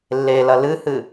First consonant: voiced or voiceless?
voiced